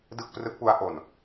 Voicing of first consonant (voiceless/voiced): voiced